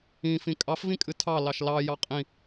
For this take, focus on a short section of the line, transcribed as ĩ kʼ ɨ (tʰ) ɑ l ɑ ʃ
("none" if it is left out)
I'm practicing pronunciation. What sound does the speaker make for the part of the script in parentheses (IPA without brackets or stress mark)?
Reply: tʰ